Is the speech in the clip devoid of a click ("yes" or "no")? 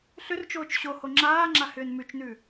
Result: no